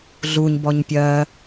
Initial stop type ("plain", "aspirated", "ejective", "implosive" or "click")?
plain